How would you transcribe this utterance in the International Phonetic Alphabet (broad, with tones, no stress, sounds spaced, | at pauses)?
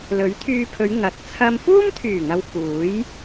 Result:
l ɵ˨˥ ɥ t̪ʰ yː˧ pʰ ɵ˨˧ ɥ ŋ ɐ˨ t̚ t͡sʰ ɐ˧ m f uː˥ m t̪ʰ yː˨˩ ŋ ɐ˨ w f uː˨˥ j